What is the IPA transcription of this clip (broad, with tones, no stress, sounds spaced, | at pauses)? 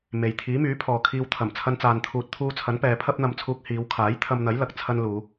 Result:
m e˨ j t̪ʰ iː˨˥ m yː˨˥ pʰ ɔː˨ kʰ iː˧ w t̪ʰ ɐ˨˩ m t͡sʰ ɐ˥ n t͡s aː˧ n t̪ʰ uː˧ t̚ t̪ʰ uː˧ t͡sʰ ɐ˨˥ n p ɛː˨˧ pʰ ɐ˥ p̚ n̪ ɐ˧ m t͡sʰ uː˧ k̚ h iː˨˧ w kʰ aː˨˥ j t̪ʰ ɐ˧ m n̪ ɐ˨˥ j l ɐ˨ k̚ t͡sʰ ɐ˥ n l uː˨˧